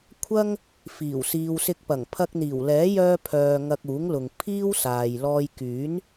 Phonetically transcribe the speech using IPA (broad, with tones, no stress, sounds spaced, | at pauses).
kʷʰ ɐ˥ ŋ | f iː˨˩ w s iː˨ w s ɪ˧ k̚ p ɐ˨˩ ŋ pʰ ɐ˧ k̚ n̪ iː˨˩ w l ɛː˨˥ j œː˧ pʰ œː˨ ŋ ɐ˧ k̚ uː˨˥ ŋ l ʊ˨ ŋ pʰ iː˥ w s aː˨ j l ɔː˧ j k yː˨˥ n